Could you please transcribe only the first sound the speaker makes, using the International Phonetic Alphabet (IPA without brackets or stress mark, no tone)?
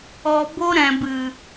ɔ